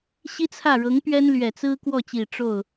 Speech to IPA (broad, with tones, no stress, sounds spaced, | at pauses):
ɕ i˥ t͡sʰ ä˥˩ ɻ ɤ˧˥ ŋ p ɥ ɛ˥ n l ɥ ɛ˨˩ t͡s ɹ̩˥ k w ɔ˥˩ t͡ɕ i˨˩ ʈ͡ʂ o˥˩ ʊ̯